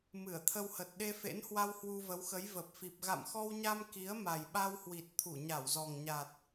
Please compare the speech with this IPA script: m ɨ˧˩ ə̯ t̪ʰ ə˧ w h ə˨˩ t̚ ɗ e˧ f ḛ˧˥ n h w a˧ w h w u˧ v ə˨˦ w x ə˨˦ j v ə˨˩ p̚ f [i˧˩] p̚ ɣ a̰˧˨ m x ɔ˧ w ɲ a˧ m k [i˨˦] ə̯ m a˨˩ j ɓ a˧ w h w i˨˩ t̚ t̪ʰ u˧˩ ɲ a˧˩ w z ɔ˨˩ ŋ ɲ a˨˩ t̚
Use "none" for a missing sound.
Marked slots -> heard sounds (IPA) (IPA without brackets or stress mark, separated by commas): i˨˩, i˨˦